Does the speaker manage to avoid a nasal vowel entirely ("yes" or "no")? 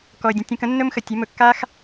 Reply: no